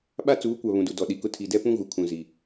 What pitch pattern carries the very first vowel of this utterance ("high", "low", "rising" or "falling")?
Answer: high